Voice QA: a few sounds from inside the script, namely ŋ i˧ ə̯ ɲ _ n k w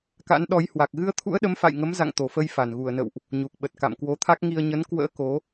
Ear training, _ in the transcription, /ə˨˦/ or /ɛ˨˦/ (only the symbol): ə˨˦